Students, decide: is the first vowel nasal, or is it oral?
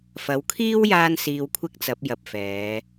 oral